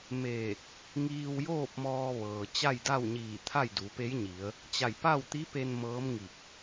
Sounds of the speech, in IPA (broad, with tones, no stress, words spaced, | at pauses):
meː˧˩k̚ | ŋiː˧wjoː˥˨p̚mɔː˧ʋɤː˩ t͡ɕa˥˨jda˥˨wɲiː˧˩ t̪ʰa˥˨jdu˩˧ pe˧˥jɲi˩˧ə̯ | t͡ɕa˧˩jpa˥˨wt̪i˧˥pe˧n mɤː˧˥mŋi˧˩k̚